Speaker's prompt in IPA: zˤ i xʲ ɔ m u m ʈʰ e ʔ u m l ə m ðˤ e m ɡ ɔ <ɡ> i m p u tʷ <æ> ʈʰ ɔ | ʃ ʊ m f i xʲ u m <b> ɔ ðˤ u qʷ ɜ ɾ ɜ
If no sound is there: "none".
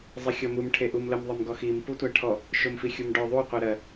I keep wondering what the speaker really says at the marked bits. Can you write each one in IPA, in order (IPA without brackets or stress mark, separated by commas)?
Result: x, æ, ɖ